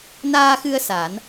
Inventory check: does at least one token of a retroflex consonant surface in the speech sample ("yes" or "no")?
no